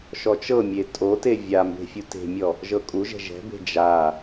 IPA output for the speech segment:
ʃ ɔ t͡ʃ ɤ mʲ e tʼ o t e vʲ a m b e̤ fʲ u t e̤ mʲ ɔ | ʒ ɤ kʼ u ʒ ɛ̤ ʒ ɛ̤ b e̤ d͡ʒ a

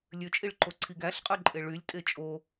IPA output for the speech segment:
lʲ ø t͡ʃʼ i ɭ ǃ o ǀʰ i ɡ æ ɬ qʼ ɯ ǃʼ e ɭ y lʲ tʼ e t͡ʃʼ o

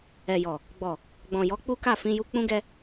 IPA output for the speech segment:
ɛ˨ j ɔ˨ | ɡ͡b ɔ˨ | ɡ͡b ɔ̃˨ j ɔ˨˦ k͡p u˦ k a˦˨ f ĩ˧ j u˧ k͡p ũ˦ ɡ ɛ˦

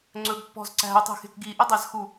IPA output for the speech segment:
ŋ͡ǀ ɵ ɡ pː ɔ̤ z ǀ æ̤ u̯ tˤ e̤ x e̤ k ɡ i ʔ ɵ dˤ æ z x u

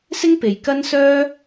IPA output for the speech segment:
s ɪ˥ ŋ p e˨ j k ɐ˥ n s œː˥

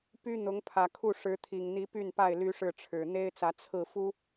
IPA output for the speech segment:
p y˦ n̪ ʊ˨˦ ŋ pʰ ä˨˩ kʰ u˥˨ ʂ ɻ̩˨˦ t̪ʰ i˨˩ ŋ n̪ i˨˦ p y˥˨ n p a˥˨ ɪ̯ l y˦ ʂ ɻ̩˥˨ ʈ͡ʂʰ ɻ̩˨˩ n̪ e˦ ɪ̯ t͡s ä˨˦ t͡sʰ ɹ̩˥˨ f u˦

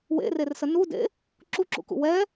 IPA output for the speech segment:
w ḛ r e r s ə n u d ḛ | ǁ u ǁ ṵ k ṵ w ɛ

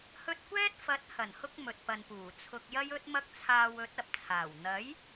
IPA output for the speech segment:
h ɵ˧ t̚ kʷ ɛː˥ t̚ f ɐ˨˥ t̚ h ɐ˨˩ n h ʊ˧ k̚ m ɵ˨ t̚ p ɐ˨ n p uː˨˩ t͡sʰ ʊ˧ k̚ j ɐ˥ j ɵ˥ t̚ m ɐ˥ k̚ t͡sʰ aː˧ w ɵ˨˥ t̚ ɐ˨ p̚ t͡sʰ aː˨˩ w n̪ ɐ˨˥ j

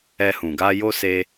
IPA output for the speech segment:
ɛ˧ h ũ˨ ɡ a˧ j o˦ s e˧

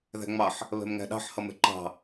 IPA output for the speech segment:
ð æ̤ ŋ͡m ɑ ħ | β ɛ̤ m ŋ æ̤ ɗ ɑ̤ ħ h ʌ m ɛ̤ ǃ ɑ̤

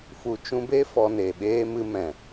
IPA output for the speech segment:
f u˨ t͡ʃ ũ˧ b e˦ f ɔ˧ n e˨ ɓ eː˦ m ɨ˧ m ɛ̃˨

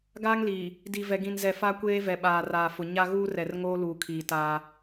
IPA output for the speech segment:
ɡ aː˦ ŋ l iː˨ | d i˨ v ɛ˨ ɡ ĩ˨ n z ɛ˨ f a˦ kʷ eː˦ v ɛ˨ ɓ aː˨ r aː˨ f ʊ˨ ɲ a˦ ɣ uː˦ r ɛ˨ r ŋ oː˦ l uː˨ kʰ iː˨ t aː˦

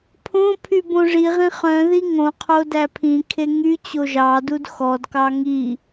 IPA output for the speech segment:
pʰ õ pʰ y b õ ʐ i ʁ ĩ χ œ̃ ð i ŋ õ qʰ o d æ pʰ ĩ kʰ e ŋ y t͡ɕ o ʒ ɑ d u d x ɔ d k ɑ ŋ i

